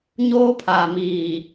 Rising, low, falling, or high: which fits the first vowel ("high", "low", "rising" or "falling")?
high